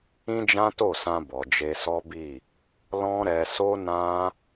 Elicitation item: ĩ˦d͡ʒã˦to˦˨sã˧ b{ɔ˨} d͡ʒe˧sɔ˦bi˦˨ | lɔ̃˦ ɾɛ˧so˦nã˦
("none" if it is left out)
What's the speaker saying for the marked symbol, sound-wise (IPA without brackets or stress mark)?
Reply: ɔ˨